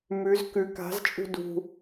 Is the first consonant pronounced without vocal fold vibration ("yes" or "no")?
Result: no